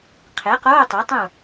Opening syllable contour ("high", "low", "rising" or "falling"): rising